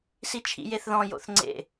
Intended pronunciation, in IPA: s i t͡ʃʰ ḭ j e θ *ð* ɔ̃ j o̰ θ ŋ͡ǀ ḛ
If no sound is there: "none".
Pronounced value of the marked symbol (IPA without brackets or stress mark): ð